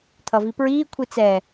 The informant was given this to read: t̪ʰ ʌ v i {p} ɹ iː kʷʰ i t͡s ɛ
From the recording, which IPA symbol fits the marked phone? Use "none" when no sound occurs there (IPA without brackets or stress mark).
p